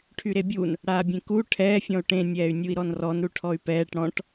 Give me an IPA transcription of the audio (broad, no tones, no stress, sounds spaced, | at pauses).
ʈʰ y ɾ e bʲ u n | ɽ aː bʲ ẽ k u ʈʰ ɛː fʲ ɔ̃ u̯ ʈ ẽ nʲ ɛː y̯ nʲ u i̯ ɾ ɔ n r ɔ n ɾ u ʈʰ ɔ y̯ p ɛː ʈ ɽ ɔ̃ ʈ